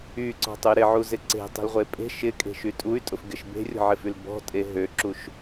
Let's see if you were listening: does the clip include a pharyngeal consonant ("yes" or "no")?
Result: yes